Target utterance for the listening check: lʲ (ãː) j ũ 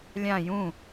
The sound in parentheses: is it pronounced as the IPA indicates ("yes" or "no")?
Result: no